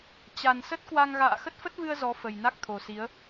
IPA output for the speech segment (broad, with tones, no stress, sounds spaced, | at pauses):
t͡ɕ a˨˩ n s ə˦˥ t̚ k w a˧ ŋ ɣ a̰ː˧˨ x ə˦˥ t̚ f ə˦˥ t̚ v ɨ˧ ə̯ z ɔ˨˦ f ə˨˩ j n a˦˥ k̚ t̪ʰ o˨˩ s i˨˦ ə̯